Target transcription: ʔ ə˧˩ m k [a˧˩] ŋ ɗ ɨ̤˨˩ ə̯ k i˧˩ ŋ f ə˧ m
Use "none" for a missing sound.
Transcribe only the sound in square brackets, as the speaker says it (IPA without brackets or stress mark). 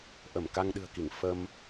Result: a˧